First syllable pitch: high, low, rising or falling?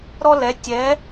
high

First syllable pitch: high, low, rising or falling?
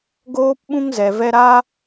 high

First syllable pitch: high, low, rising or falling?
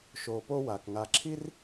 low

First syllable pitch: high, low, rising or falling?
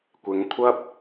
rising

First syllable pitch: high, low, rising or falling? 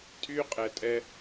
high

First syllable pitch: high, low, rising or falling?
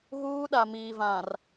high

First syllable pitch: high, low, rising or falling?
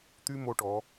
high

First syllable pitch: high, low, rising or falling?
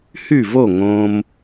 falling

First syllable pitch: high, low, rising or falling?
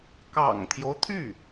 low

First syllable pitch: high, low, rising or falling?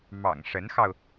low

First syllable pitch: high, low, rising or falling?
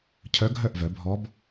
rising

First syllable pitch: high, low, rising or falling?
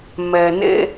low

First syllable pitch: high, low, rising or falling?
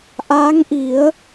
rising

